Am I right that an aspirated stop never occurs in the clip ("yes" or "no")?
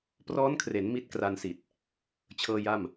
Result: no